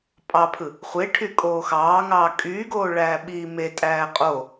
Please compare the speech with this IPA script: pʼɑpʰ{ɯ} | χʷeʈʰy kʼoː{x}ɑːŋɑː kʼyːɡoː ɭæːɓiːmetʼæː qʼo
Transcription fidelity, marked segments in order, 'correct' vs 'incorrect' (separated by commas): correct, correct